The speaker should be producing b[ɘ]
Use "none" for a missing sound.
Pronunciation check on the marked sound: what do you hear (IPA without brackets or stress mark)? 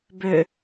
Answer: ø